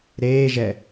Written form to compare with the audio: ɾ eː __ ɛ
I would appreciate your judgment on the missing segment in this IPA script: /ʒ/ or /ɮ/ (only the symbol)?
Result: ʒ